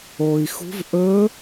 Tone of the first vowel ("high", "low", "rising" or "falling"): low